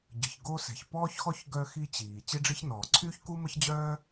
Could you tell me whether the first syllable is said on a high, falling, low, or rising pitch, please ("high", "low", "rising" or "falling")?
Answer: low